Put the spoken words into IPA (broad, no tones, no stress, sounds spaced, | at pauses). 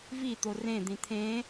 v i t̪ o r ẽ d̪ ĩ t̪ʰ ẽ